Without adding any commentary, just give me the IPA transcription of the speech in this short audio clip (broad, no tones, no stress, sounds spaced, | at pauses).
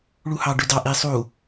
ɭ u h ɑ ɖ ø d ɑ ʔ i sˤ u